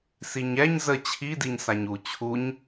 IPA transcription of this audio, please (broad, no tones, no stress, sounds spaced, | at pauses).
s i ɲ ɛ ɲ z ə t͡ɕʰ i d i ɲ s a ɲ u t͡ɕʰ u ɲ